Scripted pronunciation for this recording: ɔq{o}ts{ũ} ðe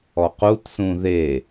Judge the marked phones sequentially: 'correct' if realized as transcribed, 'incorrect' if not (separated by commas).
incorrect, correct